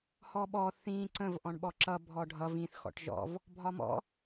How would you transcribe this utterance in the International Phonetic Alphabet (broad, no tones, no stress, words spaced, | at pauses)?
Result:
hɔɓɔ θĩ ǀə̃v ʔɔ̃ɳɓɔǁʌ bʱɔɖʱʌ vĩθ xɔ̰ʈʒɔ̰v | bʱɒmɔ̰